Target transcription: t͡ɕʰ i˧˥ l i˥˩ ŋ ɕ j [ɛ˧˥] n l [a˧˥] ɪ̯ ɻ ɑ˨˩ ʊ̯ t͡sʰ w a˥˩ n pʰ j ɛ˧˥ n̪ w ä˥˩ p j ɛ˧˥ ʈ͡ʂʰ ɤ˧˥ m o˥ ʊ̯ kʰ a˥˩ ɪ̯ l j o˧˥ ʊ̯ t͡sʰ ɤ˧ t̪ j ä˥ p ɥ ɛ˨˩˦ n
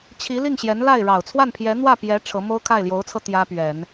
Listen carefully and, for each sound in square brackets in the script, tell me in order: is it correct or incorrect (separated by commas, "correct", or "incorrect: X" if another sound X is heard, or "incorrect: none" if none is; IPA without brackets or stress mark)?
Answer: correct, incorrect: a˥˩